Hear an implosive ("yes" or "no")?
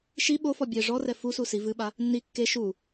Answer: yes